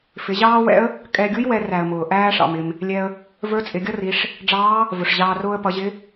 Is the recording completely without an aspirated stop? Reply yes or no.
yes